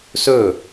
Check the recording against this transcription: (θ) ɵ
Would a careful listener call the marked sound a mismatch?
yes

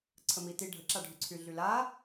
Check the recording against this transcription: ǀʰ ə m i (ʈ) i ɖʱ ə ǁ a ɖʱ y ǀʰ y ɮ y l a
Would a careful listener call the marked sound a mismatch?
yes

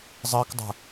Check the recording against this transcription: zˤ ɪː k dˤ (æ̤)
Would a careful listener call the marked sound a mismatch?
no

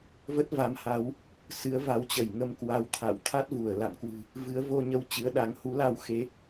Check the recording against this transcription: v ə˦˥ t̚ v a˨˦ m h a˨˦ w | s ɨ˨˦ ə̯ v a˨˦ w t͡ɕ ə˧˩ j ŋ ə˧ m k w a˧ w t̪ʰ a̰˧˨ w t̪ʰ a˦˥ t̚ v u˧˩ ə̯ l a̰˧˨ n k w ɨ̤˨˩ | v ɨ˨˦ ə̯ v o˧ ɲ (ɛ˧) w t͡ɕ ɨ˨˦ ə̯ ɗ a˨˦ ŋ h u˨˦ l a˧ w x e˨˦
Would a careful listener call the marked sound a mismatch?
yes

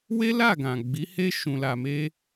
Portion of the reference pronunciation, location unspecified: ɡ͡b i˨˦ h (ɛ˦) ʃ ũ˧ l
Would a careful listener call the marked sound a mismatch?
yes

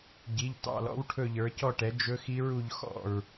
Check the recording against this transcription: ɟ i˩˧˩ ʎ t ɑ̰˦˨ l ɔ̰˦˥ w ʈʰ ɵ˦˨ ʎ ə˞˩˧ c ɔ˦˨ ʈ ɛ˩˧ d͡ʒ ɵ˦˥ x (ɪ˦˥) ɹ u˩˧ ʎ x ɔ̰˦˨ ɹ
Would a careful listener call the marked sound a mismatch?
yes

